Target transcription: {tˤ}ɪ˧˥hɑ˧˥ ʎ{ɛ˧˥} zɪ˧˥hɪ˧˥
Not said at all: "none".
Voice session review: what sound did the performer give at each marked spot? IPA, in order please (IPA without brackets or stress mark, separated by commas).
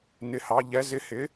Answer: n, ɛ˧˥